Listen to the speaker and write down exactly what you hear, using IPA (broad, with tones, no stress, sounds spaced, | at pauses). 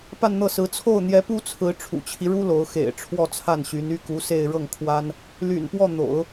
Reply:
p a˥˧ n n̪ ɤ˥˩ s ɹ̩˧˥ t͡sʰ o˥˩ ʊ̯ n̪ j ɛ˧˥ p u˥ t͡sʰ ɹ̩˧˥ ʈ͡ʂʰ ṵ˨˩ t͡ɕʰ i˦ ɻ u˥ l o˧˥ ʊ̯ x ḛ˨˩ ɪ̯ ʈ͡ʂʰ w ɔ˥˧ t͡sʰ a˥˩ n ɕ y˧˥ n y˥ k u˧˥ s e˥˧ ɪ̯ ɻ ɤ˥˩ ŋ kʰ w a˥ n | l y̰˨˩ n p w ɔ˥˩ n̪ o̰˨˩˦ ʊ̯